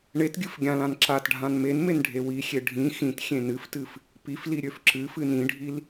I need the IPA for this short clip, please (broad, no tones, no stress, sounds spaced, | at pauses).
ɳ e t ɡʲ ɨ f ɡʲ ã l ã n ǁ a t ɖʱ ã n m e n m e n ɖʱ e w i xʲ e ɖʱ ĩ x ĩ t xʲ ẽ n ɨ f t ɨ f | p i f l i ɾʲ ø f ǁ ɨ f ɨ n ĩ ɖʱ i l